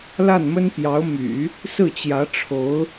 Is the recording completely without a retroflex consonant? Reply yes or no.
no